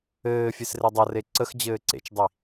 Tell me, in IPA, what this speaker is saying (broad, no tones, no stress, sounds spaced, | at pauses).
ɘː fʲ e s r e dˤ ʌ r e ǀ ə x d͡ʑ ɘː ǀ ḛ t͡ʃ dˤ i